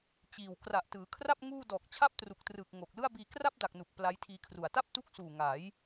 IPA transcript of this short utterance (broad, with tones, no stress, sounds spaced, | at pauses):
t͡ɕ iː˨˩ w k r a˨˩ ʔ t ɯː˩˦ kʰ r a˥˩ p̚ ŋ uː˥˩ d ɔː˨˩ k̚ t͡ɕʰ a˥˩ p̚ t r u˨˩ k̚ t r ɯː˨˩ k̚ ŋ o˨˩ k̚ l ɯ˥˩ a̯ b iː˧ k r a˥˩ p̚ d a˨˩ k̚ n u˨˩ k̚ p l a˦˥ j tʰ iː˧ kʰ r u˨˩ a̯ t a˥˩ p̚ t u˦˥ k̚ s uː˨˩ ŋ a˩˦ j